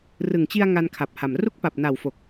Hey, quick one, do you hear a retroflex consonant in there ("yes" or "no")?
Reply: no